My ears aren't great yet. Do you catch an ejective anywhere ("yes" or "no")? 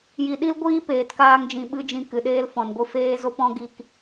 no